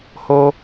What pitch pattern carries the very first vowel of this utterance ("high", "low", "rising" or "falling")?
high